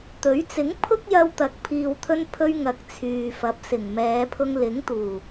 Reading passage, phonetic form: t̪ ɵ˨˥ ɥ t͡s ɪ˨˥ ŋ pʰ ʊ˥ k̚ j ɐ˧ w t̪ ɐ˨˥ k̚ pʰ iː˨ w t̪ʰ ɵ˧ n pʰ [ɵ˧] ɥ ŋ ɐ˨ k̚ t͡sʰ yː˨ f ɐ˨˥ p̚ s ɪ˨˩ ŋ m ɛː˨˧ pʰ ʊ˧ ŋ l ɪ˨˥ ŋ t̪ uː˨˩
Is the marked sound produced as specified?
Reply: yes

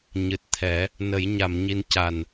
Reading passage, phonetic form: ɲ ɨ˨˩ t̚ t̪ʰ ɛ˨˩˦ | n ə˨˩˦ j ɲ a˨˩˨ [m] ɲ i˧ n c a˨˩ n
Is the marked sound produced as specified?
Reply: yes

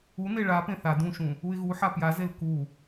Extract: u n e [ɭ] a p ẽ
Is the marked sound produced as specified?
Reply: yes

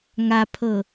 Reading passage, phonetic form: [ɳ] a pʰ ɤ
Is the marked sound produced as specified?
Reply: no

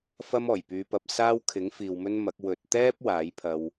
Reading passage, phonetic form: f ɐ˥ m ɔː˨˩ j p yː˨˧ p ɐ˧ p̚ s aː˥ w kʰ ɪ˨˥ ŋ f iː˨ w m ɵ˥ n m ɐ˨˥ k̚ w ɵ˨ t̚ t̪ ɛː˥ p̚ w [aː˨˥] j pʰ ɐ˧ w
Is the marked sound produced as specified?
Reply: yes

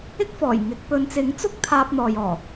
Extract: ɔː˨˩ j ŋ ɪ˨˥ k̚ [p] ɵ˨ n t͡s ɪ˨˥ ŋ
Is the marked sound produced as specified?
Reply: yes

